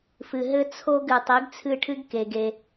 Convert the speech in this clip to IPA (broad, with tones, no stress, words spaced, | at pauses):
fɨ˨ɦɘ˦ t͡sʰo˦ɡɨ˨ tˤi˨˥ɡt͡sʰɨ˦˨ʈʰɨ˦ɡ ke˨ɡe˨